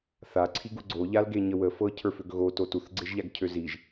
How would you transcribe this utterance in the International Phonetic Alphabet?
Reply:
θ a ǀʰ i ɡ u ɡ͡ǀ o ʎ a l ɡ e ɲ ə w ə f ɤ cʰ ə˞ f ø ɡ ɣ o t o t u θ ɡ͡ǀ e ʒ ʎ a ɡ cʰ ø z i ʒ

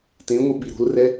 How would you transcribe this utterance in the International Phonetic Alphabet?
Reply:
t ẽ ŋʷ ɨ ɓ i ɾ o̤ l r ɛ

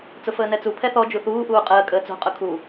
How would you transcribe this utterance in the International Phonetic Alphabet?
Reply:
t͡s ʊ f əː n ɛ t͡s u pʰ ɛ θ ɔ d͡ʒ u θ uː ʔ uː qʼ əː kʼ əː t͡s o̤ qʼ ʊ kʰ u

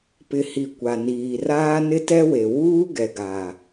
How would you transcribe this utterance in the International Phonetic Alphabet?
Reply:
p ɪ˨ h i˨ kʷ a˨ n iː˨ r aː˦ n ɪ˦ t ɛ˦ w e˨ w uː˦ ɡ ɛ˨ ɡ aː˨

